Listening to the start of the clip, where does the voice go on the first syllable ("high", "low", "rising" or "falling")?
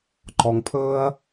low